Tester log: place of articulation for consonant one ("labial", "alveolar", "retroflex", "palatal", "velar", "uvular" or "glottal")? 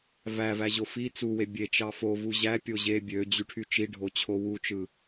labial